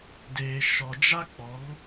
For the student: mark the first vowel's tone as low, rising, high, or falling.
low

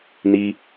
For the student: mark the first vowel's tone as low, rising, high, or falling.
high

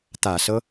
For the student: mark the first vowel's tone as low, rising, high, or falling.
low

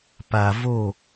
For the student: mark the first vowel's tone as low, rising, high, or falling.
low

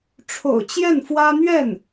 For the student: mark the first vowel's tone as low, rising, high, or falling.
low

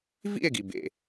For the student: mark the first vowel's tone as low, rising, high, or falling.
falling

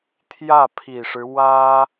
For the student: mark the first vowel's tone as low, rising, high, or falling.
falling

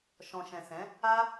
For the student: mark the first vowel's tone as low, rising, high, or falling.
low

